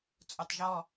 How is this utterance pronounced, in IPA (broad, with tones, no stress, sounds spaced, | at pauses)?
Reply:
t͡sʼ u˩ tˤ ʒ ɔ˧˩